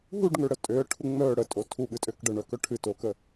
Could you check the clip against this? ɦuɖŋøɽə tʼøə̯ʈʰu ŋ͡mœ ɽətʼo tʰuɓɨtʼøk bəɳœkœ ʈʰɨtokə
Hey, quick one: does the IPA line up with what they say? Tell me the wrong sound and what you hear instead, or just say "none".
b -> ɖ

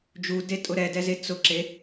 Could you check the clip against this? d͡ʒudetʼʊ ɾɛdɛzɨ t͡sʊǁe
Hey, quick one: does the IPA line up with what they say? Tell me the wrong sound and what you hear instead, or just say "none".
ɨ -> e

